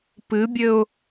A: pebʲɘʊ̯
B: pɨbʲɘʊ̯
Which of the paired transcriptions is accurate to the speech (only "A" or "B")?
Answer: B